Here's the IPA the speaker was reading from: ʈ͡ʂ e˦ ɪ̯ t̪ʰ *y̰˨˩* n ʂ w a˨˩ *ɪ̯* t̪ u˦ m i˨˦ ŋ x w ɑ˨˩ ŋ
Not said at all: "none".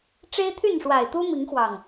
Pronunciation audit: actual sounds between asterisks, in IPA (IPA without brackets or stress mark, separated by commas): y˥˨, ɪ̯